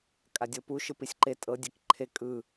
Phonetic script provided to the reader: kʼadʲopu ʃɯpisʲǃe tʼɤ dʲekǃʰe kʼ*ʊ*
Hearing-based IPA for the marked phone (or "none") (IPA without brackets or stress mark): ɯ